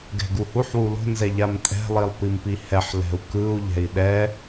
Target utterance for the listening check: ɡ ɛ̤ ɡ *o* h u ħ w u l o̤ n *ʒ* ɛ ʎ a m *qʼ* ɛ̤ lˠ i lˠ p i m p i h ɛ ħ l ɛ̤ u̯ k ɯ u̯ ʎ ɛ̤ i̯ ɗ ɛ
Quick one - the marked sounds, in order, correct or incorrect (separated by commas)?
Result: incorrect, incorrect, incorrect